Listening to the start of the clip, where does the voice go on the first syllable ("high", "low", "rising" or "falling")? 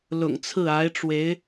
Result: low